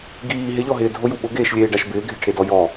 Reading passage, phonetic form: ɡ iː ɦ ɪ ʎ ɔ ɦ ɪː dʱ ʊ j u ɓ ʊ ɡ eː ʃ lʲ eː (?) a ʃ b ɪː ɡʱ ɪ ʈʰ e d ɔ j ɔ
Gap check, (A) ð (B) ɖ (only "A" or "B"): B